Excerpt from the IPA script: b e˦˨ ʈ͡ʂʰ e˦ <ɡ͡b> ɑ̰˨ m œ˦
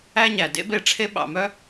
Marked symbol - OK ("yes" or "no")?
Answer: no